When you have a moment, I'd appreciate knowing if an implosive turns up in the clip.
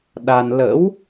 yes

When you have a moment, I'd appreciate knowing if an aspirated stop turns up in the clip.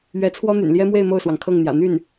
yes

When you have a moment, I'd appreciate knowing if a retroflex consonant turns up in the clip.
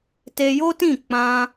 no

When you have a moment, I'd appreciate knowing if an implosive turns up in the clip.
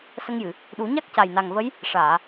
yes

